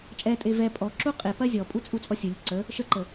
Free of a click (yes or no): no